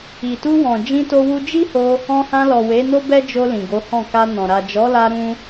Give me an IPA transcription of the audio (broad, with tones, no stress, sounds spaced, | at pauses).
i˨ t u˧ w ɔ̃˨ d͡ʒ ĩ˧ t o˧ w u˧ d͡ʒ i˦ h o˧ | ɔ̃˧ h ã˧ l ɔ˨ w e˨˦ n o˦ b ɛ˦ d͡ʒ o˧ l ĩ˨ ɡ o˨˦ h ɔ̃˦˨ k a˧ n ɔ̃˨ ɾ a˨ d͡ʒ ɔ˨˦ l a˧ ɾ ũ˦